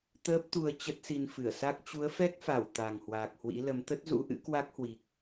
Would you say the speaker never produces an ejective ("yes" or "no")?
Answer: yes